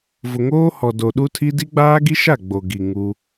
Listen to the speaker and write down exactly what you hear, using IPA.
v ʊ˨ ŋ oː˦ h ɔ˨ d o˨ ɗ u˦ tʰ i˦ d i˦ ɡ͡b aː˦ ɡ i˦ ʃ a˦˨ ɡ͡b o˨ ɡ i˨ ŋ u˦

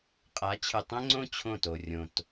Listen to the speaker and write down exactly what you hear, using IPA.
qʼ a˨˦ t͡ɕʰ ɨ˨ tˤ ɛ̃˦ ŋ͡ǀ õ˦ t͡ɕʰ õ˦˨ t o˨ rʲ õ˨ t

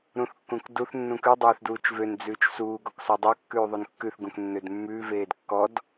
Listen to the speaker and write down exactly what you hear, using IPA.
ɾ ũ θ kː ũ k d u θ nː ũ k ʉ dˤ øː θ d uː t͡ʃ v ø n d͡z ʉː t͡ʃ s uː ɡ ɔ k s ɔ dˤ o kː ʉː ðˤ o n kː ʉ θ ɡ ũ k nː ø d mː ʉ v eː d kː ɔ d

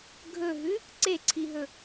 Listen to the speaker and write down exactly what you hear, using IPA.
ɡʱ ɵ ɦ ʉ | ǀ e ǀʰ i ɦ ɵ

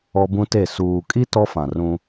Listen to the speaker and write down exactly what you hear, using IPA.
ɔ˦ b ũ˦ t e˦˨ s uː˨ kʼ i˦ t ɔ˦ f ã˨ r ũ˦

